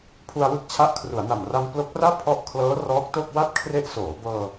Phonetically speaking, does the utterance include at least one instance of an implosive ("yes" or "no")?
no